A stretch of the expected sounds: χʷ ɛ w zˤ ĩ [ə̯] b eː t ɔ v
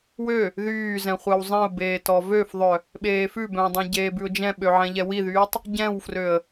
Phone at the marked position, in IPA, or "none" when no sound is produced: ʊ̯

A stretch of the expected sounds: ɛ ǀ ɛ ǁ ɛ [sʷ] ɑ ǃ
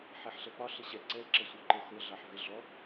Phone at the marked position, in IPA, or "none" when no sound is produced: sʷ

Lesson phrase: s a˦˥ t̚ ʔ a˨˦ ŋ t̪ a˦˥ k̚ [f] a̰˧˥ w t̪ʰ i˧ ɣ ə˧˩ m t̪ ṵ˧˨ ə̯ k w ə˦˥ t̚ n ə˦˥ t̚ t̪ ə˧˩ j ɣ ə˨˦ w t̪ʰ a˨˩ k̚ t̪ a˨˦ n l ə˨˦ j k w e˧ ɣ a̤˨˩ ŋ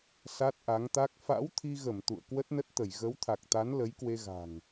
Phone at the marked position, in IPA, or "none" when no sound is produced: f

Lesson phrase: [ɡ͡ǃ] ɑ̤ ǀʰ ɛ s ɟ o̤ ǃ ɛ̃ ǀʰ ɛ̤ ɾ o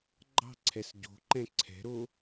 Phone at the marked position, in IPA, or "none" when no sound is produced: ɡ͡ǃ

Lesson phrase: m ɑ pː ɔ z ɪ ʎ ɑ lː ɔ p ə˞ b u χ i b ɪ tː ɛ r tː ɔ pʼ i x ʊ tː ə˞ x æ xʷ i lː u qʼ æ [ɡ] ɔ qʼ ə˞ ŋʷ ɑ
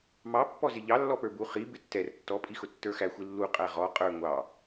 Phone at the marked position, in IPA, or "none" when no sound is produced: ʁ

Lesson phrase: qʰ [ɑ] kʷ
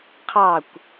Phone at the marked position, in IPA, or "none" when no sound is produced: ɑ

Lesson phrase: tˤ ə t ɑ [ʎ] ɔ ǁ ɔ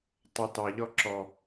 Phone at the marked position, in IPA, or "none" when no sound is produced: ʎ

